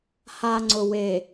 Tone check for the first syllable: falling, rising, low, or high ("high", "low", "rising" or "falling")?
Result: low